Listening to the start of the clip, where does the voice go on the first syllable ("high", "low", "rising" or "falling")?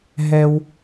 high